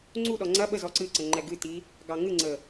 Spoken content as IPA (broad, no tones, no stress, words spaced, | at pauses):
ŋ͡ǀuɗɔ ŋ͡ǀɐ ɓəz ɔǀɨǀə ŋ͡ǃɛɡɨti | ɡɑŋɨŋ͡ǀə